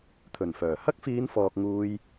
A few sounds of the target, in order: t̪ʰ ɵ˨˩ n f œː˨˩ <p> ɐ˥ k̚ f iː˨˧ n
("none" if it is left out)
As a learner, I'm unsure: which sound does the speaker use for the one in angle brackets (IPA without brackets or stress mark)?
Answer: h